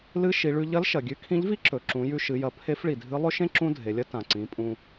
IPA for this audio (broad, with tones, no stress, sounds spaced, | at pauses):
l ɨ˧˥ ʃ i˩˧ ɭ ʉ˧ ʎ ɐ˧˥ l ʃ ɐ˩ ɡʲ ʉ˧ kʰ ĩ˧˥ ʎ v i˥ ǁ ɵ˩ ǁ ũ˩˧ j ʉ˧ ʃ ɨ˩˧ j ɐ˩˧ pʰ e˧˥ f ɭ i˩ dʱ ɨ˧˥ lˠ ɵ˥ ʃ ẽ˥ ǁ ũ˥ dʱ e˩˧ lʲ ɐ˥ t ã˩ ǀ ĩ˩˧ pʼ ũ˧